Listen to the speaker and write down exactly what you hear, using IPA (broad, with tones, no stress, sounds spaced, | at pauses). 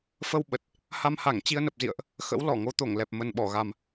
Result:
f ə˧ w ɓ ə˨˩ t̚ | h a˧ m h a˧˩ ŋ t͡ɕ i˧ ə̯ n ə˨˩ p̚ z ḭ˧˨ ə̯ ʔ | x ə̰˧˥ w l ɔ˧˩ ŋ o˨˦ t̪ o˧˩ ŋ l ɛ˨˩ p̚ m ə˨˩ n ɓ ɔ˧˩ ɣ a˨˩ m